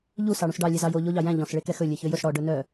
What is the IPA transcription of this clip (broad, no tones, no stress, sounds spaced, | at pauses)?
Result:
ʎ u s ɑ ɽ ũ s ɖ ɑ lʲ ɛ z ɑ j o ʎ o ʎ ɑ j æ̃ ʎ ɔ̃ s ɭ e k ɛ x ɵ lʲ e ç ø j ɵ s ɽ ɔ ɖ ɵ n œ